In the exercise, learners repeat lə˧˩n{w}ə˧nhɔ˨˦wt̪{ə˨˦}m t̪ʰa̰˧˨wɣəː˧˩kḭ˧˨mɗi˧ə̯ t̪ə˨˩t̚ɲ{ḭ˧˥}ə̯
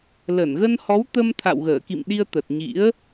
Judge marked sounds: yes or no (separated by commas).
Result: no, no, yes